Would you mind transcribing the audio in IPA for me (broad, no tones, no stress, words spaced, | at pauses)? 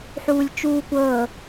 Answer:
ħuːlʲt͡ʃuːkʷɤː